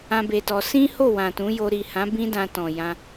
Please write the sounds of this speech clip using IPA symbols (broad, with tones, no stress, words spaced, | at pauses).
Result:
ã˦be˧tɔ˧ sĩ˦ho˦˨ wã˨tũ˨˦jo˧ ɾi˨hã˨˦ bĩ˦dã˧ tɔ̃˨jã˧